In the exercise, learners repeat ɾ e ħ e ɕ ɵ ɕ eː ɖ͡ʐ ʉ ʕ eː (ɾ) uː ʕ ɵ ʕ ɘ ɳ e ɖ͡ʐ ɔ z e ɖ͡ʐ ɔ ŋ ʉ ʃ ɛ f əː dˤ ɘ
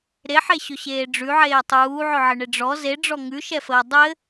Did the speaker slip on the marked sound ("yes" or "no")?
yes